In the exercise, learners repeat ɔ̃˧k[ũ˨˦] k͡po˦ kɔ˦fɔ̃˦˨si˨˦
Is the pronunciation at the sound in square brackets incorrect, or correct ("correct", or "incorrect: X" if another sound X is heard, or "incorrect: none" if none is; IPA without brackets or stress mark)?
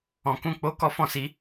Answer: incorrect: ũ˦